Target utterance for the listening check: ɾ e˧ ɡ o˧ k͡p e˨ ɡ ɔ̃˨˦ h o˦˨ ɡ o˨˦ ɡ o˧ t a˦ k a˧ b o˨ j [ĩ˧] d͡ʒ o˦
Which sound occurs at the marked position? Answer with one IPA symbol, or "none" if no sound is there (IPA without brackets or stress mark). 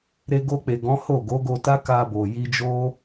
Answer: i˧